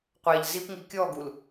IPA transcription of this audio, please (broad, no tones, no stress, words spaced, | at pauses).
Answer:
qʷæʎ zipŋi kʲɔɡul